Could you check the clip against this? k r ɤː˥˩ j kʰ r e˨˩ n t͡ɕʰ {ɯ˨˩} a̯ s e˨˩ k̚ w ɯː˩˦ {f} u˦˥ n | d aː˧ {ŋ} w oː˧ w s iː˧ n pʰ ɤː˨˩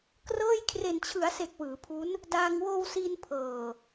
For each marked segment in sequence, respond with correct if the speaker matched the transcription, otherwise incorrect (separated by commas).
incorrect, incorrect, correct